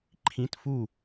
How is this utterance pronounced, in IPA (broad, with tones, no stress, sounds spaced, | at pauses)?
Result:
ǃʰ ĩ˧˥˧ t f u˥˨